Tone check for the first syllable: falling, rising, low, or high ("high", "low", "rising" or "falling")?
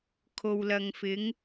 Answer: low